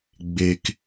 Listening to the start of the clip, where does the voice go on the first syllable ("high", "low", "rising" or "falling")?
low